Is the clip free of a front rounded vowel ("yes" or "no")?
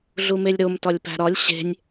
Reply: yes